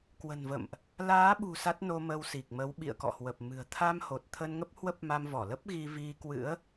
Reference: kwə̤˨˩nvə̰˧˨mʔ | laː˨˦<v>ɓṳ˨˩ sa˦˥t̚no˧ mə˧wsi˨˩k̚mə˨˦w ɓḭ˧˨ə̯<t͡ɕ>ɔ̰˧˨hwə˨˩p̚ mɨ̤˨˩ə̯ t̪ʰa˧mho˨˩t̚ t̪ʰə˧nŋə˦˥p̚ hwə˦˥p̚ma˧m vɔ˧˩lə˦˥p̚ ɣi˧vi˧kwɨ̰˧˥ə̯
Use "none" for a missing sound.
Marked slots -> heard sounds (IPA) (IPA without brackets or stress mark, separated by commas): none, k